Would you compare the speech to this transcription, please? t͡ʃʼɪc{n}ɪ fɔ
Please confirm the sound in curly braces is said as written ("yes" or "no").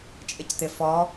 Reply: no